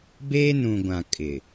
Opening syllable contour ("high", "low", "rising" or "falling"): high